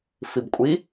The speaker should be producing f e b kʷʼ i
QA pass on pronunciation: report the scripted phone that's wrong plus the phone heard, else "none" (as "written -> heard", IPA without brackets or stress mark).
e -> i